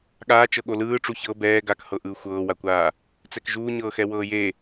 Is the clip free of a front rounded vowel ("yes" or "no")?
yes